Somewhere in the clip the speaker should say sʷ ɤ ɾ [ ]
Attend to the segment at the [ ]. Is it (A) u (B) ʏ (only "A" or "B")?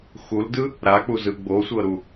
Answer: A